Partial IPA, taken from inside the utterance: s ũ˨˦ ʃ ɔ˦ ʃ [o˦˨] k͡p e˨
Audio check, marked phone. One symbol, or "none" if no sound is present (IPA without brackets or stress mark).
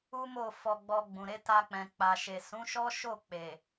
o˦˨